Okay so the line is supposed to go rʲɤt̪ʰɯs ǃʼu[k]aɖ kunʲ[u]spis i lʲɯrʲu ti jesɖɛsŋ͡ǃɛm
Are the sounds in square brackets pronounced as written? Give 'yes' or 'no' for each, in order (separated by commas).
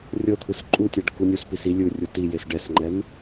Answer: no, yes